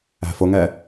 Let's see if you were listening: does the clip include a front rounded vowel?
no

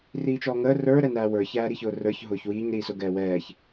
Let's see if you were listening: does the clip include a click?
no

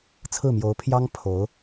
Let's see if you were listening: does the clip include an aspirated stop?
yes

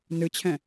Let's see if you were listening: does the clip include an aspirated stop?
yes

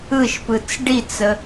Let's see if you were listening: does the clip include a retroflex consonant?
yes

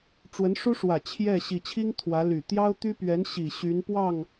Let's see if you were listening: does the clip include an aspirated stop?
yes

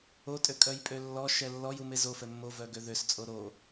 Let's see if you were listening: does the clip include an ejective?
yes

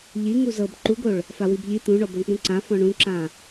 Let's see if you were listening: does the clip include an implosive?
no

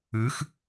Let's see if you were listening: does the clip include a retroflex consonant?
no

